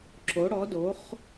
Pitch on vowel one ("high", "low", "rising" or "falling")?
rising